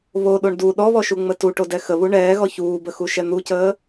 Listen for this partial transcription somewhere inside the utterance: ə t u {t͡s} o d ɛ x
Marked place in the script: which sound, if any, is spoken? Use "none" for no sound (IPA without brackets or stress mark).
ʈ